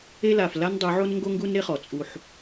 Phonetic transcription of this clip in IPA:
e˦ l a˨ f l a˦ n dˤ u˨˦ ʕ o˦ n ŋ ɡ o˦ ŋ ɡ u˦ n ɾ e˦ χ ɔ˨ t͡sʼ u˦ ħ

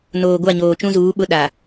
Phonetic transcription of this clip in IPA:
n oː˨ ɡʷ a˦˨ ɲ oː˨ t͡ʃ ũ˦ z uː˨˦ ɓ ʊ˦ ɗ a˨

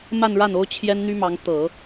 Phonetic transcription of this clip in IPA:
m a˥˧ n ɻ a˥˩ n o˥ ʊ̯ t͡ɕʰ j ɛ˥ n n̪ y˥ m ɑ˧˥ ŋ t̪ ɤ˨˩˦

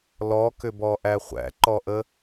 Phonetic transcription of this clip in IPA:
l ɔ k ʏ b ɔ ʔ æ χʷ æ̰ ǃ ɔ ʔ ə

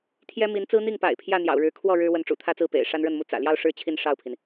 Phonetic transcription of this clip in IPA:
t̪ʰ j ɛ˥ m i˧˥ n t͡s ɹ̩˥ n̪ i˥˩ ŋ p a̰˨˩ ɪ̯ pʰ j ä˥˩ n̪ j ɑ̰˨˩ ʊ̯ ɻ ɻ̩˧˥ kʰ w ɔ˥˩ ɻ ɻ̩˥ w ə˧˥ n ʈ͡ʂ ṵ˨˩ t̪ʰ ä˥˧ t͡s ɹ̩˥˩ p ḛ˨˩ ɪ̯ ʂ a˥ n ɻ ə˥˧ n m u˥˩ t͡s ä̰˨˩ l j ɑ˥˧ ʊ̯ ʂ ɻ̩˥˧ t͡ɕʰ i˥˧ n ʂ ɑ˥˩ ʊ̯ pʰ i˩ n

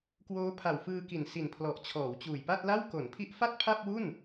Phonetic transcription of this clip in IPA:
k w oː˦˥ pʰ a˨˩ w f ɯː˧ k i˨˩ n s i˨˩ n pʰ l ɔ˨˩ ʔ t͡ɕʰ ɔː˩˦ w t͡ɕ uː˨˩ j p a˥˩ t̚ l a˥˩ w k o˩˦ n pʰ i˦˥ ʔ f a˥˩ t̚ pʰ a˥˩ p̚ w u˥˩ n

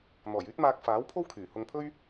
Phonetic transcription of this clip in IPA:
n̪ ɔː˨˩ j yː˥ t̚ m aː˧ k̚ f aː˨˥ w pʰ o˥ w kʰ yː˨˩ h ʊ˧ ŋ pʰ ɵ˥ ɥ

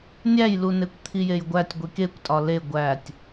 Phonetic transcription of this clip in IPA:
nʲ æ j l u n e kʷ t̪ʰ i j e j ɡʷ æ tʲ ɡʷ i k e kʷ tʼ ɒ l e ɡʷ æ tʲ

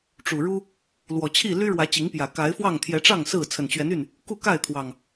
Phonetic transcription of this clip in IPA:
ʈ͡ʂ u˨˩ ɻ u˦ | l w ɔ˨˩ t͡ɕʰ i˥˨ l y˦ ɻ w ä˨˦ t͡ɕ i˨˦ ŋ p j ä˨˩ k a˨˦ ɪ̯ f w ɑ˥˨ ŋ t̪ʰ j ɛ˨˦ ʈ͡ʂ ɑ˥˨ ŋ s ɹ̩˥˨ t͡sʰ ə˨˩ n t͡ɕ ɥ ɛ˨˦ n y˥˨ n | k u˥˨ k a˥˨ ɪ̯ t̪ʰ w ɑ˨˩ ŋ

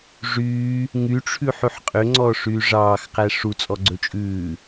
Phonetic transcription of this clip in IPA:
ʐ yː | ŋ y ʈ͡ʂʰ ʉ ħ ʉ ħ qʼ ø ŋ͡ǀ ɔː ʂ yː ʐ ɑː x q æ ʂ u t͡sʼ ɔ ɡ͡ǀ ɵ t͡ʃʼ ʉː

